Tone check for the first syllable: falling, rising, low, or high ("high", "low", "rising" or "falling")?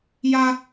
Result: high